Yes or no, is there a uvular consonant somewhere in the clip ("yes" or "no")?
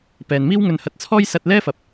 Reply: no